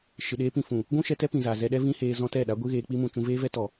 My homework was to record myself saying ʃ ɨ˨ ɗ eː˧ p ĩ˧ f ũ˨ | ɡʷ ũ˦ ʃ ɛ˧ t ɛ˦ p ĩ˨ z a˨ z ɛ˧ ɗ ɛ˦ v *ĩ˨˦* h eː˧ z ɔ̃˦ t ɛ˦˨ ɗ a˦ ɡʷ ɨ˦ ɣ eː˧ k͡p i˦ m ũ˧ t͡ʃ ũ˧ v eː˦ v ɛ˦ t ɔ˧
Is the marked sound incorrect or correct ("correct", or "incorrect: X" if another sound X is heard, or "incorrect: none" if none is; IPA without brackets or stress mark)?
incorrect: ĩ˦